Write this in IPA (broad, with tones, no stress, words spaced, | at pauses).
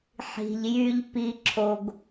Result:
ħi̤˨ʎjy˧ʎ pi˧ǁʰo˧ɡ